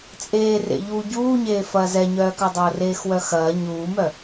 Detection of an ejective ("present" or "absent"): present